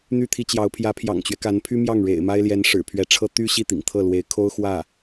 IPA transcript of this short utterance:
n̪ y˥˩ t̪ʰ i˥ t͡ɕ j ɑ˧˥ ʊ̯ pʰ j ä˧˥ pʰ j ɑ̰˨˩ ŋ t͡ɕ ɥ ɛ˦ k a˧˥ n pʰ y˥ m j ɑ˥˩ ŋ ɻ ḛ˨˩ ɪ̯ m a˥ ɪ̯ l j ɛ˧˥ n ʂ ɻ̩˨˩ pʰ ɥ ɛ˧˥ ʈ͡ʂʰ ɤ˥ t̪ y˥ ɕ i˥˩ t̪ ḭ˨˩ ŋ t̪ʰ ɤ˥˩ l w e˧˥ ɪ̯ kʰ o˥ ʊ̯ x w ä˥˩

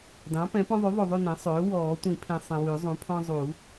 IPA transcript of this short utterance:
d ɑ̃˩˥ p ɛ̃˩˥ p ɔ̃˦ ðˤ ʉ˩˥ ðˤ o˨ ðˤ ʉ˦˨ n ɛ̃˩˥ sˤ øː˩˥ w ɔː˨˩˦ tʷ ĩ˨˩˦ pʰ ẽ˨ sˤ ẽ˨ w ʉ˨˩˦ zˤ ũ˩˥ pʰ ɔ̃˦ zˤ u˨˩˦

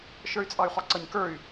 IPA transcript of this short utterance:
ʃ ə˞ y̯ t͡sʼ ɑ y̯ χ ɔ ǀ ʌ ɲ k ə˞ y̯

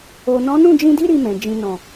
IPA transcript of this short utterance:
o˨ n ɔ̃˨˦ n ũ˦˨ d͡ʒ ĩ˧ d i˦ ɾ i˧ m ɛ̃˨ d͡ʒ ĩ˨ n ɔ̃˨

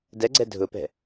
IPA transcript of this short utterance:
d ɛ ɡ͡ǀ ɛ dʱ ʊ p ɛ̤

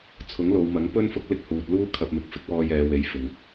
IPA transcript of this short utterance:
t͡sʰ ʊ˨˥ ŋ l o˨˧ w m ɐ˨˥ ŋ p ɵ˥ n f ʊ˥ k̚ l ɪ˥ k̚ h uː˨ t̚ l uː˥ kʰ ɐ˧ p̚ m ɪ˧ k̚ f ɪ˥ k̚ w ɔː˧ j ɛː˨˧ w e˨˥ j f ɪ˨ ŋ

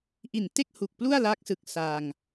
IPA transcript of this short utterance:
ʔ i˨˩ n t e˥˩ k̚ h u˨˩ k̚ p l u˥˩ a̯ l aː˦˥ k̚ s ɯ˨˩ k̚ s aː˧ ŋ

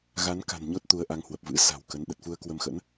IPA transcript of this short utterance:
ɣ a˨˦ n k a̤˨˩ n ɲ o˦˥ t̚ t̪ u˨˦ ə̯ ʔ a˨˦ ŋ h w ə˨˩ p̚ v ɨ̰˧˥ s a̤˨˩ w k ə˨˦ n ɗ ə˨˩ t̚ f u˧ ə̯ k w ə˧ m x ə̰˧˥ n

